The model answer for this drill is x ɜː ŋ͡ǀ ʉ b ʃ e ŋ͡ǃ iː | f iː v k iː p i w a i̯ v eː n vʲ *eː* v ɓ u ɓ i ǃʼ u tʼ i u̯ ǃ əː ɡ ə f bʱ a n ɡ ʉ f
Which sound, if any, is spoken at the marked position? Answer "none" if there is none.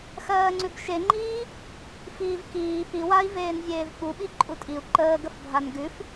eː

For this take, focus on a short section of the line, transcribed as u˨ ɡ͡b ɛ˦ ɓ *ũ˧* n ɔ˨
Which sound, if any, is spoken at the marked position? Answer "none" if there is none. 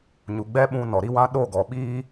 ũ˧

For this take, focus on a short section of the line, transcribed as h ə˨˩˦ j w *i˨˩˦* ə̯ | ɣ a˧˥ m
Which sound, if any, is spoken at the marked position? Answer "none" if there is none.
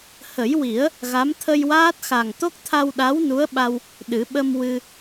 i˨˩˦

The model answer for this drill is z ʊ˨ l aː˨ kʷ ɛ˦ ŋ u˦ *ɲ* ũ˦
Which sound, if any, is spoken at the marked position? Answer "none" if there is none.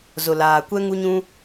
ɲ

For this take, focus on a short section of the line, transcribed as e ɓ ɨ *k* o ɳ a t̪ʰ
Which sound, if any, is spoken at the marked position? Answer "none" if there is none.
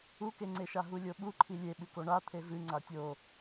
k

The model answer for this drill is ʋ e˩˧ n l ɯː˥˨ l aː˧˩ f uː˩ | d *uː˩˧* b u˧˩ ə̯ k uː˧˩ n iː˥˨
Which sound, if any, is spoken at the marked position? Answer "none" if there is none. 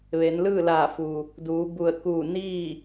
uː˩˧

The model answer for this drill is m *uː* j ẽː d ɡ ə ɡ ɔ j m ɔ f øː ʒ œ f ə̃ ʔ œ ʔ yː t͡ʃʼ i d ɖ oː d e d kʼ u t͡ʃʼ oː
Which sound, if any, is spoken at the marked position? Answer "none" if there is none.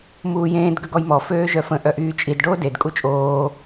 uː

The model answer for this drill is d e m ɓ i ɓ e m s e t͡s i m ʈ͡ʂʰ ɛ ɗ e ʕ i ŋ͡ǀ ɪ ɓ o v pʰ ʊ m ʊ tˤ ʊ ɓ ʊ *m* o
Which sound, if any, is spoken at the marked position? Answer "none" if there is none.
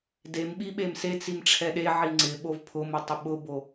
b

